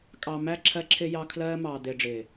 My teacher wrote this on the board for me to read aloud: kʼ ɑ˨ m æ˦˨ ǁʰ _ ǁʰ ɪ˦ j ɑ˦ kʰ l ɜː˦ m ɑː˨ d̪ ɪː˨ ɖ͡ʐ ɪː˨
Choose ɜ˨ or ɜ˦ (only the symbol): ɜ˦